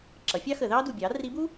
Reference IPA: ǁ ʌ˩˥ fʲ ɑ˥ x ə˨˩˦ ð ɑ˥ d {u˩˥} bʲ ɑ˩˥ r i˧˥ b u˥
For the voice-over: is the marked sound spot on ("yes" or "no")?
no